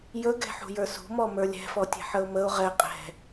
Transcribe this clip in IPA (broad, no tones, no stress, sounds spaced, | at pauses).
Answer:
j ɵ ɡ ɛ̤ ħ ṳ j ə˞ s ṳ m ɔ m ə˞ lʲ ɛ̤ f ɔ tʲ ɛ̤ ħ ə ʊ̯ m ə ʊ̯ ʁ ɛ qʼ ɛ̤